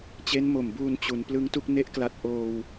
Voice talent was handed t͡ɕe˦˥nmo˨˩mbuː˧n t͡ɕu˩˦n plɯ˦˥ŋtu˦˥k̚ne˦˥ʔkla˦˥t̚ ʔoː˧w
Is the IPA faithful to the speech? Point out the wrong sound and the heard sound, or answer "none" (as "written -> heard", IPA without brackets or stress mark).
none